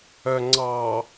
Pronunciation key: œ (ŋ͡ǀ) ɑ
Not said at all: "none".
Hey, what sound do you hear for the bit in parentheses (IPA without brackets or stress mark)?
ŋ͡ǀ